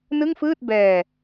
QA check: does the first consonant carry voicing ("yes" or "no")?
yes